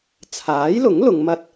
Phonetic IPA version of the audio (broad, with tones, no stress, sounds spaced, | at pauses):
t͡sʰ aː˨˥ j l ʊ˨˥ ŋ l ʊ˨˧ ŋ m ɐ˧ t̚